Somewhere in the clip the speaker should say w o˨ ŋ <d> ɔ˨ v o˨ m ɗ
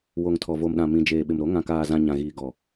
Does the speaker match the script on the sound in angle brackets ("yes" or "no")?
no